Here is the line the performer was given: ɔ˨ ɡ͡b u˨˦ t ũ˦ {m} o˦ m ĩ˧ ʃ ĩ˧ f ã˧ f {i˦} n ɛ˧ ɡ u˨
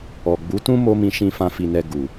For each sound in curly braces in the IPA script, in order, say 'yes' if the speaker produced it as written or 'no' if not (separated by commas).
yes, no